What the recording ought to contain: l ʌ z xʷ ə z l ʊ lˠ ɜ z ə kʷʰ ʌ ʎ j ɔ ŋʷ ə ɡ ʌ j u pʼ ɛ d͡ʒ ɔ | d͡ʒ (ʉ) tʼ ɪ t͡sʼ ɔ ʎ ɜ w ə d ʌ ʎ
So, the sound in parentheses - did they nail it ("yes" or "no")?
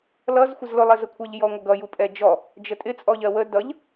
no